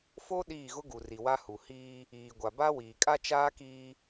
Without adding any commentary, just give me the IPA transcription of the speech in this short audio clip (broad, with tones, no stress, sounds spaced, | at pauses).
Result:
f o˦ ɗ iː˦˨ ɣ ʊ˦ ɡ u˨ r i˨ w a˦ h u˨ h iː˦ | iː˨ ɡʷ a˨ b a˦ w iː˨ kʼ a˦ t͡ʃ aː˦ k iː˦